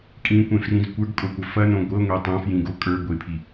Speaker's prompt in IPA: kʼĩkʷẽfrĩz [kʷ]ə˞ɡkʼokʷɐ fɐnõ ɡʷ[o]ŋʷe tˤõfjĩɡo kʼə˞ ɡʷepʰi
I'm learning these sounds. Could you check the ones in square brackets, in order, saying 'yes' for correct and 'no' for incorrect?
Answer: yes, no

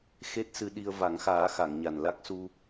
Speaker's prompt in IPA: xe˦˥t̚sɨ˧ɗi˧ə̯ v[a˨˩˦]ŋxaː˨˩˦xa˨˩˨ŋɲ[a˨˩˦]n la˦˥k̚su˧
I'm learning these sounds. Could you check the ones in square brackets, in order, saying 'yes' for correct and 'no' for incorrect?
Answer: yes, no

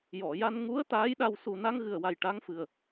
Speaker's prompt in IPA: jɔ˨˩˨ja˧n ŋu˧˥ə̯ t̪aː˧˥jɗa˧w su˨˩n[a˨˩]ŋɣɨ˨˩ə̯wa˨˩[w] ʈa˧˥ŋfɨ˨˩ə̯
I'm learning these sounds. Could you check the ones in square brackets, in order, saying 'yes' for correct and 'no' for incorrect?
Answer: no, no

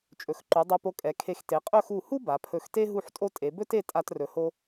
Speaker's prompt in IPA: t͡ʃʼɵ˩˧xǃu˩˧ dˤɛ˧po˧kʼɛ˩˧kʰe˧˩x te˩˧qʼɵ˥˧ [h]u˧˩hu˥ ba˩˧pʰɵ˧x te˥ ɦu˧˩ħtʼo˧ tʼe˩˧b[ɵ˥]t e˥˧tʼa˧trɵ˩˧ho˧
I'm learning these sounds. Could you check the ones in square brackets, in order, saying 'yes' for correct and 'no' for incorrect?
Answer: no, yes

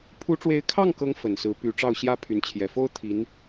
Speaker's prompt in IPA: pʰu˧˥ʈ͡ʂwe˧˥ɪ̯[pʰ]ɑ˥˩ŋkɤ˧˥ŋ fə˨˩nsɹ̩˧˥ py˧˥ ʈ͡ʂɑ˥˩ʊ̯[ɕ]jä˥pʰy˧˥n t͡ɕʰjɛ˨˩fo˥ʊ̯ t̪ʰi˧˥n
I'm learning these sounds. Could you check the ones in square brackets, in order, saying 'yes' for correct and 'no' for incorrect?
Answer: no, yes

